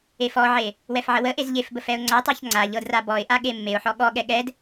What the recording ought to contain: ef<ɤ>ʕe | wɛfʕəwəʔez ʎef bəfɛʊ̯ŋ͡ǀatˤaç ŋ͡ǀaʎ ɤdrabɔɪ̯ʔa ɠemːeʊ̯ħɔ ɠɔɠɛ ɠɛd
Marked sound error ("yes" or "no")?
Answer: yes